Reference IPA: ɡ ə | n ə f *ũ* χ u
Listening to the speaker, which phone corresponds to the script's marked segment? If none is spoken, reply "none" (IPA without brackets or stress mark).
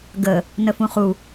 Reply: ũ